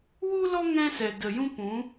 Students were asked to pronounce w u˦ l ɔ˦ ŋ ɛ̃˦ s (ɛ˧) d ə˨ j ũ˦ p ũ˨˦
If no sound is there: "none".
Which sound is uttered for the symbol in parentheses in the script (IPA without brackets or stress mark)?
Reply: ɛ˨